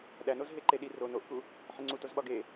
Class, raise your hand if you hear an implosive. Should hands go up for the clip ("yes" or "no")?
yes